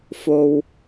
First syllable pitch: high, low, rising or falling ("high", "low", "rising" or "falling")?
low